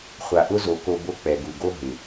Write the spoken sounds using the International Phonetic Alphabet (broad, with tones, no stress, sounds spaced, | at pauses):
χʷ a˨ ʔ ʊ˦ z o˨ k o˨ b o˦ k͡p ɛ˨ ɡ u˨ ɡ o˦ ɦ ɪ˨